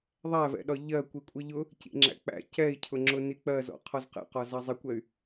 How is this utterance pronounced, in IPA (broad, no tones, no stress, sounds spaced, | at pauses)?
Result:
ðˤ æ v ɛ̰ ɗ ɒ ʎ ɜ kʷ i kʷʼ i ʎ ʊ | c ḭ ŋ͡ǁ æ̰ k͡p æ̰ c ɛ i̯ cʰ ʊ ŋ͡ǁ ʊ n i k͡p ɜ z ɔ̰ qʰ ɔ z q ɛ̰ q ɒ z ɑ zˤ ɪ kʷ ɛ y̯